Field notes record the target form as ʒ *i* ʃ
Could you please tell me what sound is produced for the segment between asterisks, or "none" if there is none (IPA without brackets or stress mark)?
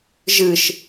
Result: ɨ